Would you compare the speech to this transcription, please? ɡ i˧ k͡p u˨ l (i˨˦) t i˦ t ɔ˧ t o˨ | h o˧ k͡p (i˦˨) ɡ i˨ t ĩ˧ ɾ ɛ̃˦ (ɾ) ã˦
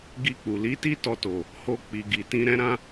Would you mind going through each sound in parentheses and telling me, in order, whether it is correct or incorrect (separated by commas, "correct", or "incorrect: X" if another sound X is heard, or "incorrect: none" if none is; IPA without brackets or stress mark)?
correct, incorrect: i˨, correct